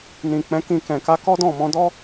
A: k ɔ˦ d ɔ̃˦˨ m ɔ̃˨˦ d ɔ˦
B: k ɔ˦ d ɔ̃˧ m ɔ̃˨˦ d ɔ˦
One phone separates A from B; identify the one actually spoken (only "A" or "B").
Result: A